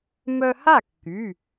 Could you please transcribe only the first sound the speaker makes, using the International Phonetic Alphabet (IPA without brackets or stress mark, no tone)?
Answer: m